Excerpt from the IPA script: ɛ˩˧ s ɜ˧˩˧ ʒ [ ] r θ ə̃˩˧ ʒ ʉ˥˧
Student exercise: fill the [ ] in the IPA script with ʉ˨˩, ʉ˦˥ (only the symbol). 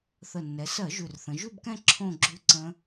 ʉ˨˩